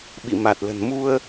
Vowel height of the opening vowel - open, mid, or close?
close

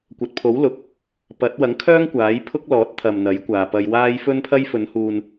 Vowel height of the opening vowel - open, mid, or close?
open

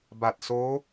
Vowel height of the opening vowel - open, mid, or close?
open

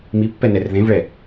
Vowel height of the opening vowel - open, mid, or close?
close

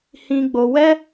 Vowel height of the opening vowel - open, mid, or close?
close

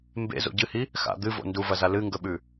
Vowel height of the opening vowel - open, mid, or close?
mid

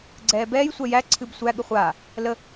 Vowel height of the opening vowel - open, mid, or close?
mid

